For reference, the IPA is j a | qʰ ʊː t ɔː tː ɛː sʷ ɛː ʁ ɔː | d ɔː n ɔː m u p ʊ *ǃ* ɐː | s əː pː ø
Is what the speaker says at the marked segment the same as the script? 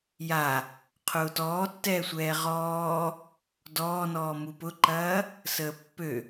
yes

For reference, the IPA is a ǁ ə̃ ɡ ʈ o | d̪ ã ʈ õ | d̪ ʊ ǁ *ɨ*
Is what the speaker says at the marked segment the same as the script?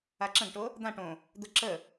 no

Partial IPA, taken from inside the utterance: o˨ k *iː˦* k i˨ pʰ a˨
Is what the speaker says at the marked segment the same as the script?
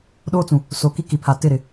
no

